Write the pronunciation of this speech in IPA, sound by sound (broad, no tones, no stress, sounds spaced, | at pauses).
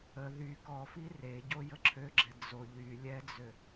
ə ð y k ɔ f i r e ɟ o j ə ǁʰ ø ɡ͡ǁ ɛ d͡z o ʎ y lʲ ɛ d͡z ø